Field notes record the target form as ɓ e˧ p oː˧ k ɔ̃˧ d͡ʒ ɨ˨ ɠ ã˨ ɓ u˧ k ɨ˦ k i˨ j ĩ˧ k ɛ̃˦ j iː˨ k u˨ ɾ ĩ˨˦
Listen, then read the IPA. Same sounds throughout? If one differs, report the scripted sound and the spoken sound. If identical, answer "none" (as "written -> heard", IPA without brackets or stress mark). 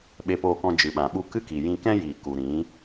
ɠ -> ɓ